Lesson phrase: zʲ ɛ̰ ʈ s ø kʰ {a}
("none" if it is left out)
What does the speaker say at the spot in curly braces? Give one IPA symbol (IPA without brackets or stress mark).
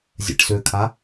a